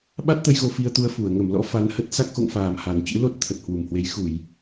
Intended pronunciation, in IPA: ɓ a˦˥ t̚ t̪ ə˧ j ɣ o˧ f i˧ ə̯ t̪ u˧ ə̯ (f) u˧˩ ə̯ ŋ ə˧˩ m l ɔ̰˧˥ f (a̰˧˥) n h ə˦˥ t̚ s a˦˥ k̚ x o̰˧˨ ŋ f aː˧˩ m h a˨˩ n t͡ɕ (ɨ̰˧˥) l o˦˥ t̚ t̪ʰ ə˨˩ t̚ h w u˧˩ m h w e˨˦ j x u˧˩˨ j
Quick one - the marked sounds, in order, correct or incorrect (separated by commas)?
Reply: correct, incorrect, correct